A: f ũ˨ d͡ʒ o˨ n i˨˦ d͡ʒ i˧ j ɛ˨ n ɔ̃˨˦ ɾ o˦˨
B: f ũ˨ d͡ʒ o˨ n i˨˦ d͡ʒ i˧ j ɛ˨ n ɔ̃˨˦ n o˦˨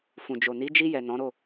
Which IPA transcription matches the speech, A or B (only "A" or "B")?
A